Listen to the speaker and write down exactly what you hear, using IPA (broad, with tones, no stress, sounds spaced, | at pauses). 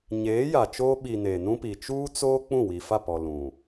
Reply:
ɲ eː˨˦ j a˨ t͡ʃ oː˦ ɓ i˨ n eː˨ n ũ˦ p i˨ t͡ʃ uː˦ t͡s oː˦ k͡p ũ˦˨ w i˨ f a˦˨ p ɔ˨ l ũ˨